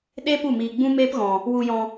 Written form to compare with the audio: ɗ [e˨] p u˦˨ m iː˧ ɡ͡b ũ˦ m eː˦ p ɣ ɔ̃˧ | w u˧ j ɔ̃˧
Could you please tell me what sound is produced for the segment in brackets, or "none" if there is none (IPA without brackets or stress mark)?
e˦